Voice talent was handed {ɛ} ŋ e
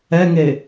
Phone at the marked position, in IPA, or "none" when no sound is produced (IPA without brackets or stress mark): ɛ